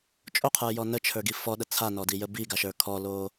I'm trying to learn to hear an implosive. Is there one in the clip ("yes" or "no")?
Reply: yes